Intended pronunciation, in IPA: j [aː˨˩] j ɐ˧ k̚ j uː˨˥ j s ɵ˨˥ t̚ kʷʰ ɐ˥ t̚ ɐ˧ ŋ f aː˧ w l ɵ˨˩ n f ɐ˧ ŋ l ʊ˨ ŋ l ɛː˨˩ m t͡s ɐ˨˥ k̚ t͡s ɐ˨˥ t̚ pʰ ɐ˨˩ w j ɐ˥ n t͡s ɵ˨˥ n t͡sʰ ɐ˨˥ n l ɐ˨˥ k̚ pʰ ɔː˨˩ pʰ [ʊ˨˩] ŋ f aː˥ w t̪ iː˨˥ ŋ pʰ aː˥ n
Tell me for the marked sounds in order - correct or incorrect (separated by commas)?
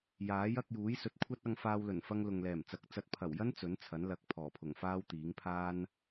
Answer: incorrect, correct